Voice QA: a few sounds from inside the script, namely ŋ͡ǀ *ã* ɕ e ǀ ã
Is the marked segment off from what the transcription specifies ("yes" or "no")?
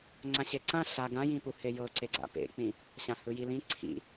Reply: no